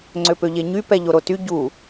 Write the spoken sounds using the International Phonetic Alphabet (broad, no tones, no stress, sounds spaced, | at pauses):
ŋ͡ǀ ø p ø ʎ e ɲ y p ɛ ʎ o ɾ o t y ɟ u